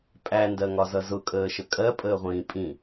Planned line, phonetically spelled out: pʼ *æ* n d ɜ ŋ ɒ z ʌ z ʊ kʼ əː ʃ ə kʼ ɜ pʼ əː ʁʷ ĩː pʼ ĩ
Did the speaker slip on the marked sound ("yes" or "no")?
no